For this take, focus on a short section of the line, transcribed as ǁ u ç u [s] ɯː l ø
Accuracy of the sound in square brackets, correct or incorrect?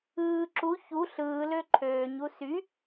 incorrect